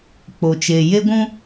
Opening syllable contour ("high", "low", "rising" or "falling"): low